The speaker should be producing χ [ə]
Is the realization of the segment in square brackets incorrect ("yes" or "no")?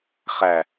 yes